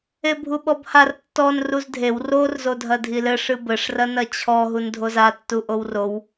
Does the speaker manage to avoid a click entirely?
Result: yes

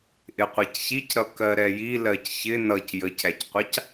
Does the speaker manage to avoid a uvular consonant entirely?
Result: no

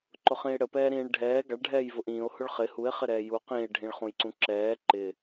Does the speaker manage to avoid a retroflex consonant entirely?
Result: no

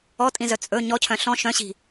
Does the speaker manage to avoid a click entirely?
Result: yes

